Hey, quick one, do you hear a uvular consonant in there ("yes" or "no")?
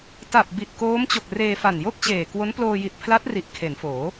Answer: no